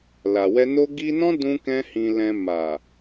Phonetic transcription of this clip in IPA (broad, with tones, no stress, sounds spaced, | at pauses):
l a˨ w ɛ˧ n o˦ ɡ i˦ n ɔ̃˦ d ũ˧ k ɛ̃˧ h ĩ˧ l ɛ̃˧ m a˨